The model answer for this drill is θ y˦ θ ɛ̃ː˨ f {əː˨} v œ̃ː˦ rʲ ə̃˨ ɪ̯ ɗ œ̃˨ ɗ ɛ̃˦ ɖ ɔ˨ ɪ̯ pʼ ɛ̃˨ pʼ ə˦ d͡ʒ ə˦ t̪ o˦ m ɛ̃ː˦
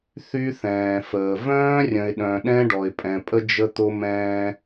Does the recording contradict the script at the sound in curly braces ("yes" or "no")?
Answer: no